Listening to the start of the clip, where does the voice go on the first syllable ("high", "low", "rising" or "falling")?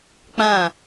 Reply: falling